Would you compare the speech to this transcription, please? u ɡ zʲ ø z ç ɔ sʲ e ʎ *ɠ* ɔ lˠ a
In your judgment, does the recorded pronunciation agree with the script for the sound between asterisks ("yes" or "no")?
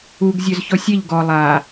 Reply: no